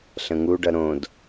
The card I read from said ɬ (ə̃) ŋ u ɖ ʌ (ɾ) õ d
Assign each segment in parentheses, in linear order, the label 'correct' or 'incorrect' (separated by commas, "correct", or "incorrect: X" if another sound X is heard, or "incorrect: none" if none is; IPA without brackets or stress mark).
correct, correct